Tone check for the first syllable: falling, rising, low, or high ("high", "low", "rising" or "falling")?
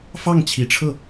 falling